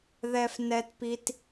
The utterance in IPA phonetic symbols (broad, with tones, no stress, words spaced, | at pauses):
ðɛ˦fnɛ˦tpi˦t